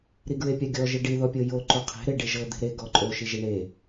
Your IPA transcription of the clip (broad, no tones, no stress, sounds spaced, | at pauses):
ɾ i ɡ ɹ e pʲ a ɡʲ ɔ ʒ i ɖ i ð ɔ pʲ ɤ j o ǃ o qʰ e̤ ɾ e ɖ e ʒ ɤ d̪ e̤ ɾ e ɡ ɔ ǃʼ o ʃ i ʒ i ɳ e